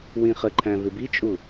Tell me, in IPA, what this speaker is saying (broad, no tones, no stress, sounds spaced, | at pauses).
w ĩ χ ə ǃʰ æ̃ v ɪ b i t͡ʃʼ u